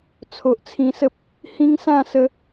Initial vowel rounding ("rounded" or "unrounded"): rounded